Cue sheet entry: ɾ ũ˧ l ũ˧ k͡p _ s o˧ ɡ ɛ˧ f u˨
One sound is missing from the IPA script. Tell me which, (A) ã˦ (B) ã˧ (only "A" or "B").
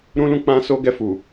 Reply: B